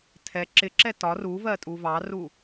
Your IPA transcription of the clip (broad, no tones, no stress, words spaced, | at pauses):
tʰɛ ǁɪǁɛ tɒ ruvɜtʼu vɑru